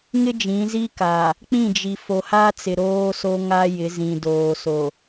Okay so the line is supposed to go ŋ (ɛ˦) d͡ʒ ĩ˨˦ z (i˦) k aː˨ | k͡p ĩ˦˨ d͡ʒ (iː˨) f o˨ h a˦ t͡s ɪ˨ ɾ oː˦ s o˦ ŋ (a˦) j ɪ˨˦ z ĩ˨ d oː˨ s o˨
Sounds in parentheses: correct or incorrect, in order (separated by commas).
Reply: incorrect, correct, incorrect, correct